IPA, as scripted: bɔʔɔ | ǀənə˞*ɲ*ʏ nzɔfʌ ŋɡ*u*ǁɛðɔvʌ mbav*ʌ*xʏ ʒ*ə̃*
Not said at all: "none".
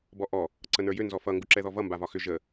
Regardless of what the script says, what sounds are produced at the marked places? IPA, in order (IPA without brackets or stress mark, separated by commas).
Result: j, u, ɒ, ə